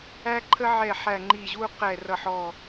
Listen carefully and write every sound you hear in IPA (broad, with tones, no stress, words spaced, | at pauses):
æ˦ǃʰə˦ʕɛ˧˩ ħæ˧˩ŋ͡ǃi˧˩ʑu˦ qɛ˧˩rʌ˧˩ħɔ˧˩